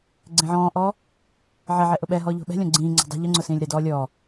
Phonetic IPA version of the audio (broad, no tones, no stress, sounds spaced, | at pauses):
ɡ͡ǀ ẽ ʕ ɔ̃ː ʔ ɔː | ʕ ɛ ʕ ɛ ʔ ʊ ɓ ɛ ɦ ɔː ʎ o̤ ɓ ɛ̤ lʲ ɔ̃ ɡ͡ǀ ĩː ŋ͡ǀ o̤ dˤ ṳ ʎ ʊ ŋ͡ǀ ʊ s ĩː lʲ ɾ ɛ d ɔː lʲ ɔː